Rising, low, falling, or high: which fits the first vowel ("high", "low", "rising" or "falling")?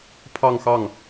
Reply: falling